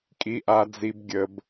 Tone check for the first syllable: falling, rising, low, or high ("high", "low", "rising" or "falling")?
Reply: low